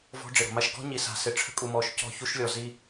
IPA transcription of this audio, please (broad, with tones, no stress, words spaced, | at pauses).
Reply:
vɔ̤˦ɖ͡ʐɪ˨ɾɔ̤˨ma˦ʃ ɡɔ̤˦ɲi˨sa̤˨ sɪ˨ʈ͡ʂʰə̤˦kʼu˨mɔ˨ʃ cɔ̤˦˨çu˦ʃ lʲɔ˨ zi˦